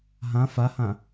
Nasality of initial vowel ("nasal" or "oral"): nasal